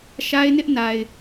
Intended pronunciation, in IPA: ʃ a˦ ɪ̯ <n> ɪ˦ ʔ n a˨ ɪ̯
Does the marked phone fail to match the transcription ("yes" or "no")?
no